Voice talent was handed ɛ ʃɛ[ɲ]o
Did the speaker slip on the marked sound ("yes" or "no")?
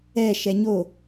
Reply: no